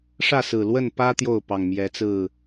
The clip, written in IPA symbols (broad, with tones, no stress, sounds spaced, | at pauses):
ʂ ä˥˨ s ɹ̩˨˩ l w ə˥˨ n p ä˦ t̪ j o˥˨ ʊ̯ p ɑ˨˩ ŋ m j ɛ˨˦ t͡s ɹ̩˥˨